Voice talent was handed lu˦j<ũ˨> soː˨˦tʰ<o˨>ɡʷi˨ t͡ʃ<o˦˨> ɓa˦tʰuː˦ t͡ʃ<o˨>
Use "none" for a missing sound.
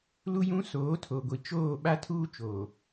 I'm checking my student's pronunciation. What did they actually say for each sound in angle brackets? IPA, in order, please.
ũ˦, o˨, oː˦˨, oː˨

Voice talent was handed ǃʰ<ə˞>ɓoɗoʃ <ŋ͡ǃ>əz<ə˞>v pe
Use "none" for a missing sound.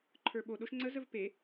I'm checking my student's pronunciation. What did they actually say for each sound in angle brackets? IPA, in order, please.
ə˞, ŋ͡ǀ, ə

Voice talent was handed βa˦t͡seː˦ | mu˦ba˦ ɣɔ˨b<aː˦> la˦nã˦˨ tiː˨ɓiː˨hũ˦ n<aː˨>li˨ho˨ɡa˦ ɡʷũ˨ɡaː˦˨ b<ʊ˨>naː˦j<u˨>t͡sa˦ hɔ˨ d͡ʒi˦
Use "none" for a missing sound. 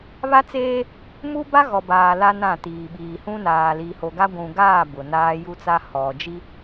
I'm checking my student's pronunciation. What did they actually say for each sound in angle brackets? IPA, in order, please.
aː˨, aː˨, ʊ˨, u˦

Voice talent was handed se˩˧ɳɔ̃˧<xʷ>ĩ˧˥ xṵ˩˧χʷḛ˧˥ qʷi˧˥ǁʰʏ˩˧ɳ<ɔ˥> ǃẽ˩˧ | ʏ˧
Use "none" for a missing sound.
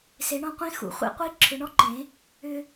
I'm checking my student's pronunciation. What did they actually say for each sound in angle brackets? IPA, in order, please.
qʷ, ɔ˥

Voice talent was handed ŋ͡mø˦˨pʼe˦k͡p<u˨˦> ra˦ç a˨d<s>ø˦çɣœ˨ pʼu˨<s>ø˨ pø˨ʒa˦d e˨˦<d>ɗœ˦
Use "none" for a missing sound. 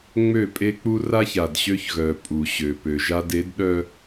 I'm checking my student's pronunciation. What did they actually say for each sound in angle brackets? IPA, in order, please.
u˦, ɕ, ɕ, d

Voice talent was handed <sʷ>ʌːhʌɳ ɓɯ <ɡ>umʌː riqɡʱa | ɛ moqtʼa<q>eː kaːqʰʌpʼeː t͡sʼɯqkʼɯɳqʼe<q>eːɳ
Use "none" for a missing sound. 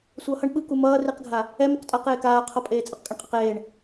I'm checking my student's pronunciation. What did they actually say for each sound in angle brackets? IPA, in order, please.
sʷ, k, q, q

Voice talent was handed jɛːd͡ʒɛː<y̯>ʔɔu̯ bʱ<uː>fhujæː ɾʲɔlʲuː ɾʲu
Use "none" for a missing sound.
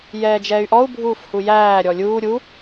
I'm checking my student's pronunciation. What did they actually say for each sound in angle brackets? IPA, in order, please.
y̯, uː

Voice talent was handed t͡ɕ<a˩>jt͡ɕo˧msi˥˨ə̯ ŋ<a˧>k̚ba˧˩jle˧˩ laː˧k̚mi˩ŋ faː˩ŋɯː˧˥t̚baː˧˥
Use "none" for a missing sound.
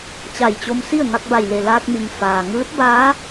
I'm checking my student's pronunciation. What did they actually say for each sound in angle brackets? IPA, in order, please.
a˧˩, a˧

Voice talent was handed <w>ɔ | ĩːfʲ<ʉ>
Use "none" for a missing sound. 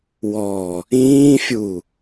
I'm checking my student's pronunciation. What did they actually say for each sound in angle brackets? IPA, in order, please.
w, u

